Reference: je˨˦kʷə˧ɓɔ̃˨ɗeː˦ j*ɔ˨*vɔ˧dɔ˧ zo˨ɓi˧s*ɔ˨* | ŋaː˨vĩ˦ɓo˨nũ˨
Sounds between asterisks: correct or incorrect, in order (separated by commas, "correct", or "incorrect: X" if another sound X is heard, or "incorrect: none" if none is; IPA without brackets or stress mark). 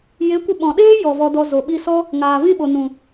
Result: correct, incorrect: ɔ˦